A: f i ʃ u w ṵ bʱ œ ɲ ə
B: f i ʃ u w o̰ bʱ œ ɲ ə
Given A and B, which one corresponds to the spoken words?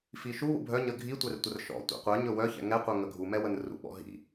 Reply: A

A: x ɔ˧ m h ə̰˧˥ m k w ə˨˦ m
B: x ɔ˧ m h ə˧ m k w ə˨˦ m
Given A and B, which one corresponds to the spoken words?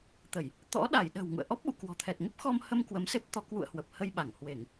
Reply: B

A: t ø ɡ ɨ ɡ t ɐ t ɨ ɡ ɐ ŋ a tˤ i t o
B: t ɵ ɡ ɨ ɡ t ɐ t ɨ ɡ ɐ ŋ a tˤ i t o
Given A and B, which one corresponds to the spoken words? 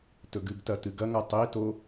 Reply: B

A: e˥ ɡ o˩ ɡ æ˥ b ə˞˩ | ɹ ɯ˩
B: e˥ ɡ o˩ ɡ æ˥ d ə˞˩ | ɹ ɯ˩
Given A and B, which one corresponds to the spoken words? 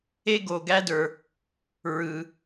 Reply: B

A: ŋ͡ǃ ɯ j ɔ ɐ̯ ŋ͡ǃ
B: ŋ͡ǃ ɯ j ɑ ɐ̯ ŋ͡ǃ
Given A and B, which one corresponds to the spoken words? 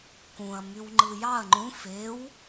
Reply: B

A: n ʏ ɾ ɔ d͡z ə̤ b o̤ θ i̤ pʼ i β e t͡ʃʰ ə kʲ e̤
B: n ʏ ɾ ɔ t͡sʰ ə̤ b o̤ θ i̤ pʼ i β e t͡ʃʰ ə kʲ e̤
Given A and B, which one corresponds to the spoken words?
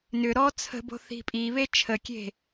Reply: B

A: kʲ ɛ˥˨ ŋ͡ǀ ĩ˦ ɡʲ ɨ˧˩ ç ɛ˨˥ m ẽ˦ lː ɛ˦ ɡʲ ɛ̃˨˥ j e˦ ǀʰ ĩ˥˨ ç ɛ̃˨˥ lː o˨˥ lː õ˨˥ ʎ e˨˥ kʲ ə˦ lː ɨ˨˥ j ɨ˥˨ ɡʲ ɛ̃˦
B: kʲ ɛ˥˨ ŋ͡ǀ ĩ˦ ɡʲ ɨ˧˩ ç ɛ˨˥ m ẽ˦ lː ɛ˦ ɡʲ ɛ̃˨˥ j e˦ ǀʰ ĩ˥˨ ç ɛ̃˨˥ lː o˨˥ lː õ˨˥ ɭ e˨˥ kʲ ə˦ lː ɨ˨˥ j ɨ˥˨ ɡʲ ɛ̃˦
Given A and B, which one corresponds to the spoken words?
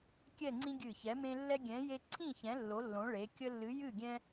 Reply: B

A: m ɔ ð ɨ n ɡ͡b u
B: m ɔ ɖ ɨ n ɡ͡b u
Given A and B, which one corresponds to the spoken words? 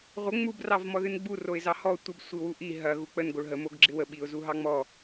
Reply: A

